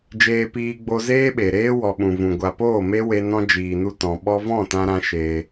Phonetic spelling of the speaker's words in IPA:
d͡ʒ eː˨ p iː˨ ɡ͡b o˧ z eː˦ ɓ e˨ ɾ eː˦ w ɔ˨ ɓ ũ˨ v ũ˨ ɡʷ a˨ p oː˦˨ m e˦ w e˧ n ɔ̃˧ d͡ʒ iː˨ n u˧ t ɔ̃˨ ɓ ɔ˦ v ɔ̃˦˨ t ã˧ ɾ ã˧ ʃ eː˧

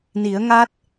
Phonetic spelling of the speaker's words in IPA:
n i˨˩˦ ə̯ ŋ aː˦˥ t̚

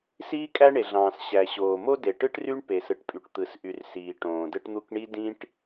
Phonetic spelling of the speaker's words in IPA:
s iː˥ kʼ æ˥ ɳ e˩ ɮ ɑ̃ː˩ s ɕ æ˩ ɕ oː˩ m o˥ d e˩ ʈ ɯ˥ ʈ r y˥ ɳ p e˩ s ɯ˩ ʈ pʼ y˩ ʈ t̪ ɯ˩ s ʔ y˩ r s iː˩ ʈ õː˩ d ɯ˥ ʈ n̪ u˥ k ɳ i˥ d ĩ˥ ʈ

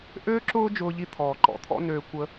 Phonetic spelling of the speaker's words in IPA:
ʔ øː˥ ǁ ʊː˥ d͡ʒ ʊː˧ ʎ i˧ t̪ʰ ɔː˩ ǃ ɔ̰˧ t̪ʰ ɔ̰˥ n øː˧ kʷ ə˧

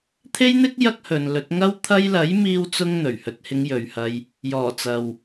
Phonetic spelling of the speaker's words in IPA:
t̪ʰ e˥ j n̪ ɪ˥ k̚ j ɐ˥ k̚ h ɵ˨ n l ɵ˨˥ t̚ ŋ ɐ˧ w t̪ʰ ɐ˧ j l ɐ˨˥ j m iː˥ w t͡s ʊ˥ ŋ n̪ ɵ˨˩ ɥ h ɵ˨˥ t̚ h ɪ˨˧ ŋ j ɵ˨ ɥ h ɐ˧ j | j ɔː˨˩ t͡s ɐ˨ w

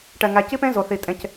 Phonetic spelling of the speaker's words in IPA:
ʈ ɛ˧ ŋ æ˧ c i˥ p ẽ˥ z o˧ θ i˧ tʼ ẽ˥ c

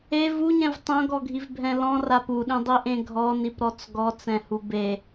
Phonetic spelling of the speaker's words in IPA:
e v u ɲ ɛ̃ v tˤ õ ɡ ɔ ɡʱ i v bʱ ɛ̃ l ɔ̃ r a p u ɗ ĩ dˤ i ʔ ẽ ɡʱ ɔ n i p ɾ ɔ t͡s ɡ ɔ t͡s ɛ̃ h u b e

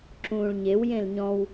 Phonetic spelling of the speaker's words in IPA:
ǁ ũː ɭ ɲ e w j ẽ l ɲ ɔ̃ w

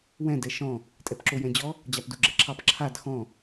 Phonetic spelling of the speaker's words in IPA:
w ɛ̃ d ɛ ʃ ɔ̃ | tʼ ɛ p ǁ o j ɛ̃ d͡ʑ ɔ | d͡ʑ a p d u ɡ͡ǁ ɛ ǁʰ ɑ p ǁʰ a d x ɔ̃

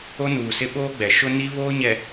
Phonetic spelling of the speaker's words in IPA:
o˦ n uː˨ s ɪ˦ ɓ oː˦ ɡ͡b ɛ˨ ʃ ʊ˦ n i˦ β oː˦ ɲ ɛ˨

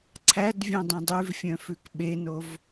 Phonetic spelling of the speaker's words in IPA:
ǀʰ æ d vʲ œ̃ dˤ ĩ dˤ ʉ v fʲ œ̃ f ʉ k ɓ e n o v

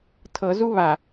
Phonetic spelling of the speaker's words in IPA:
tʰ ɤ z u β a

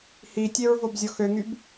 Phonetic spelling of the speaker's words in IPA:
h i tʲ e ɹ v o b zʲ ɔ x ø ŋ y b

